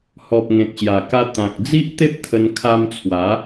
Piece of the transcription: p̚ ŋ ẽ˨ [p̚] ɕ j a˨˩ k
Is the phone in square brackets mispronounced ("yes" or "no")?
yes